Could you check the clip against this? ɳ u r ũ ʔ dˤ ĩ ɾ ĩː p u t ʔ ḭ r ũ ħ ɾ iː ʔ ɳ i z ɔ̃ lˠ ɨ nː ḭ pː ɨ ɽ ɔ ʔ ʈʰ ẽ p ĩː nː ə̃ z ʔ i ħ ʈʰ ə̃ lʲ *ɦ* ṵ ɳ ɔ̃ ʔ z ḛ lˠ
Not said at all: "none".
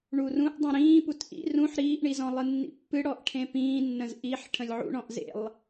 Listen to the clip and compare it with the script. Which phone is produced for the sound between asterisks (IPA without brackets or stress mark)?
ʕ